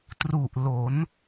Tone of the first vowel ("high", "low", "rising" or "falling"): low